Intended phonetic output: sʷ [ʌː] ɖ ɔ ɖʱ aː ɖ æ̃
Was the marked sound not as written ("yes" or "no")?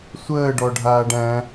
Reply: yes